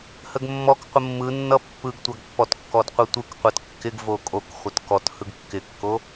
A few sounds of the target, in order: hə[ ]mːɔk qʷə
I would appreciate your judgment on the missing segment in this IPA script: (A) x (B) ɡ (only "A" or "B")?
B